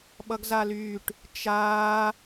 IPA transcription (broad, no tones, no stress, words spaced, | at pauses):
ɓʌɡzalyːʈ | t͡ʃaː